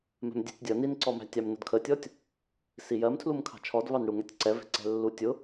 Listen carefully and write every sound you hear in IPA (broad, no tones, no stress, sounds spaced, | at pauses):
m ɛ̤ m dʲ ɛ̤ tʲ dʲ ʌ n i n ǀ ɔ m æ̤ tʲ ɑ m n ʊ d kʰ ə tʲ ɔ tʲ | s i j ɜ m tʰ l u m kʰ ɑ̤ t͡ʃʰ ɔ d v ɑ n ɽ u ŋ ɛ tʲ ǀ ɛ v ɛ̤ ǀ ɛ̤ lː u tʲ ʊ